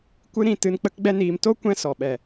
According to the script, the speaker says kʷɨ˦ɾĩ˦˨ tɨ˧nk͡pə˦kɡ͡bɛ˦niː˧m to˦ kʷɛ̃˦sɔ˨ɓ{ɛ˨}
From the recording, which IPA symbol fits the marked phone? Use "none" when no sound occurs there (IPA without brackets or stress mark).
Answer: ɛ˨